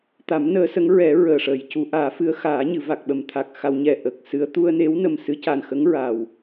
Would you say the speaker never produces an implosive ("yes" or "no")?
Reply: no